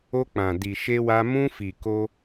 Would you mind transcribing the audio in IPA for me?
o˧ k͡p ã˨ d i˨ ʃ e˧ w a˧ m ũ˧ f i˨ k o˧

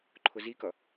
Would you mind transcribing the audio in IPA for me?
ǃʰ ʊ z i k ʌ

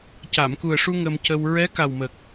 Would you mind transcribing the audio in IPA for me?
c a˨˩˨ m k u˨˩ ə̯ ʂ u˧ ŋ ə˧ m c ə˧ w ɹ ɛ˧˥ k a˨˩ w m ə˨˩ k̚

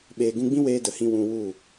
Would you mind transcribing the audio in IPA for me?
ɓ eː˨ ɡ ũ˧ ɡ͡b ĩ˦ w eː˦ d ə˨ h ĩ˦ w ũ˧ w u˦˨

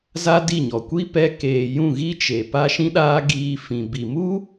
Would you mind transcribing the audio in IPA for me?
z a˦ d i˦˨ ɲ ɔ˨ kʷ i˦ p ɛ˧ k eː˨ j ũ˦˨ ɣ i˦ t͡ʃ e˨ p a˦ ʃ ĩ˦ ɗ aː˦ ɡ iː˧ f ĩ˨ b i˨ m u˦

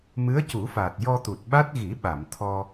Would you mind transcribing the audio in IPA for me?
m ɨ˧˥ ə̯ c u˨˩˦ f aː˨˩ t̚ j ɔ˧ t̪ u˨˩ t̚ ɓ a˦˥ t̚ ɣ i˨˩˦ ɓ a˨˩˨ m t̪ʰ ɔ˧

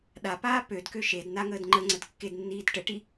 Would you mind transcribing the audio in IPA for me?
ɗ a p aː p ø d k ø ʃ e d n a ŋ əː d ŋ͡ǃ ə ŋ͡ǀ ə d kː e d nː iː d ʈ ə ʈ i

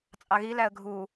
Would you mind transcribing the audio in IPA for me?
t͡sʼ ɑ ɣ i l æ ə̯ ɡʱ u

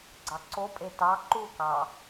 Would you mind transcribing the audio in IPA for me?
ɡ͡ǀ ɑ ǀ o pʼ e t ɑ ǃ u k ɑ

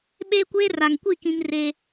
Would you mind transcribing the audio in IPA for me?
ɓ eː˦ kʷ eː˦ r a˨ ŋ kʷ i˦˨ k ĩ˦ ŋ r eː˦

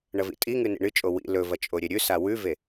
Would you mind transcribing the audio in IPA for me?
ɳ ɐ v ḭ tʼ i ŋ ɨ n ḭ ɳ ɨ t͡ʃʼ o w ḭ l ɵ v ɐ t͡ʃʼ o ɾʲ e ɾʲ ʉ s a w ʉ v e

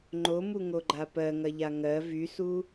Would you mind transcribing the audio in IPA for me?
ŋ͡ǃ o m u ŋ o ɡ͡ǃ a p ɜ ŋ ɐ ʎ a ŋ ɜ v y s u

